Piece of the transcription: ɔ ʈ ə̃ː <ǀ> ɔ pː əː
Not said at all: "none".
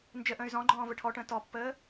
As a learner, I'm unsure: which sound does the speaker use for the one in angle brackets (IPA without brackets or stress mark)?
t